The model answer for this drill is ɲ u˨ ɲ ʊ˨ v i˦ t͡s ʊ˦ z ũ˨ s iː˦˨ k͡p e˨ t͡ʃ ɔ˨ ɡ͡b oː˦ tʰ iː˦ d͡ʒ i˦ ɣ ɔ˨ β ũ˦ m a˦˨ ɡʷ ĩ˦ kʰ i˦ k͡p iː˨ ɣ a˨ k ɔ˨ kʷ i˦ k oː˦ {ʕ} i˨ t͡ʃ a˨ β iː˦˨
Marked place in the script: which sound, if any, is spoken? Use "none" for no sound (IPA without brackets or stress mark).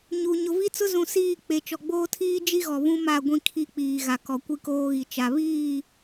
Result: ɣ